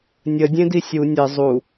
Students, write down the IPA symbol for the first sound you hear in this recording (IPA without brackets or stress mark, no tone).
nʲ